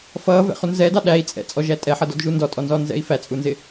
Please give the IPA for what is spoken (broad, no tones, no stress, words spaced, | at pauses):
fʌː vɛ̰χunzɛːdɑ ɗæi̯ t͡sʼɛ̰ t͡sʼɔʒæ tʼɛħʌdɔd ʒundɔtʼɔnzɔː nzɛ̰i̯fæt͡sʼunzɪ